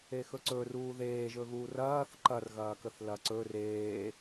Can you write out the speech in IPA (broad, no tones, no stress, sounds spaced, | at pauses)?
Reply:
e x ɵ ǀ ɵ r uː ð eː ʒ ɵ ɣ uː r ɐː θ ǃ ɐ r ɣ ɐː k ə θ l ɐ ǀ ɵ r eː